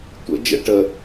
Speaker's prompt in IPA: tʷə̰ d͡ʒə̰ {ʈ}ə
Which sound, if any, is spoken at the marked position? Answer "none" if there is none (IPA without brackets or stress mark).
ʈ